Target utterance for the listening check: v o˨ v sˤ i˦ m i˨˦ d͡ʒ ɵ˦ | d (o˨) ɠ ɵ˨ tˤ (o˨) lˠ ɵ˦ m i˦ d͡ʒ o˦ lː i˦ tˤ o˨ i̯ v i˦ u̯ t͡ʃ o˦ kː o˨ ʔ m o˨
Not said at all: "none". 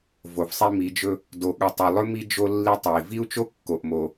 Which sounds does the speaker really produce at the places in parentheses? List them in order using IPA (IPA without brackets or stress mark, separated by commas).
o˨, ɵ˨